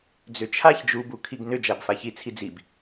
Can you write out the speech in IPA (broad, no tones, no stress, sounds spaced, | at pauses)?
d͡z ʏ t͡ʃʰ a ç d͡ʒ u b u kʰ i ɡ n ʏ d͡ʒ a b f a ç i t͡sʰ i d͡z i b